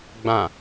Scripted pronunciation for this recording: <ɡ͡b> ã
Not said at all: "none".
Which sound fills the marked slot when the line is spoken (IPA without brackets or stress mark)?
ɡ͡b